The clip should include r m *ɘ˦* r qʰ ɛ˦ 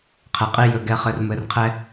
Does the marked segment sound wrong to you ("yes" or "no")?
yes